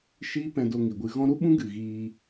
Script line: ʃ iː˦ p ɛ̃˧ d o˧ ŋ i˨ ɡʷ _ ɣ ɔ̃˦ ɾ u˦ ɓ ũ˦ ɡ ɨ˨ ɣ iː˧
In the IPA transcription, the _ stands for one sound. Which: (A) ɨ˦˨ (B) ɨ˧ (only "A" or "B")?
B